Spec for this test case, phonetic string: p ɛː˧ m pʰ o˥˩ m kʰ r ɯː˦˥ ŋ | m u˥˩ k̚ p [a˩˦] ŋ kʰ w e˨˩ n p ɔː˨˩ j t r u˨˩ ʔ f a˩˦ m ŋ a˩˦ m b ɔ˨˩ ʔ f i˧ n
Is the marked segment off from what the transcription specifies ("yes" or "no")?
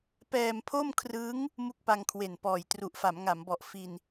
yes